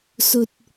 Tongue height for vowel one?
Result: mid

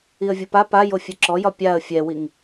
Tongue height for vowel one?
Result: high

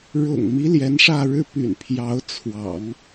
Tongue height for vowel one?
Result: high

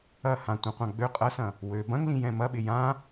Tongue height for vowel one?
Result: low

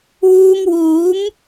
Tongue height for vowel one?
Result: high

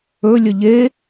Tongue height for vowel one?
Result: mid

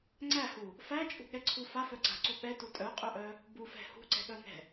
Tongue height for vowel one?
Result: low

